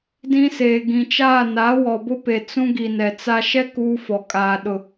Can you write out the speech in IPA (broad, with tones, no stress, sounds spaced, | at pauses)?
d ĩ˦ s eː˨ ɡ ĩ˨ t͡ʃ aː˦˨ n a˨˦ w ɔ˨ b ʊ˦ p e˨ t͡s ũ˦ ɡ i˨ n ɛ˨ t͡s a˦ ʃ ɛ˦ k uː˦ f ɔ˨ kʼ aː˨ ɗ ʊ˨